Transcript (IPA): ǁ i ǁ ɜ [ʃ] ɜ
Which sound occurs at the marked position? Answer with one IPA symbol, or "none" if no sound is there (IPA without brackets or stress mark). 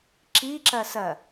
s